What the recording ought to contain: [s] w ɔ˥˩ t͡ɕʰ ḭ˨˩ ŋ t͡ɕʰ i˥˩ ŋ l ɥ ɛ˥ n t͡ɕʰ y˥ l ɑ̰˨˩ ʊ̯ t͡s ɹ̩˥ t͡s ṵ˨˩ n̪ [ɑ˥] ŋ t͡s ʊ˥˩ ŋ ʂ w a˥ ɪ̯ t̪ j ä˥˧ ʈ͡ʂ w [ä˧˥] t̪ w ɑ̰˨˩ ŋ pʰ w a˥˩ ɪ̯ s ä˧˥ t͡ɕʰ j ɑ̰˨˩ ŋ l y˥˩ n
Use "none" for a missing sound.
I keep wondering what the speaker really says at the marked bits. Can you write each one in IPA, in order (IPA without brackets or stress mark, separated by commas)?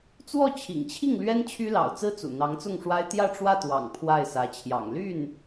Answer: t͡s, ɑ˧˥, ä˥˩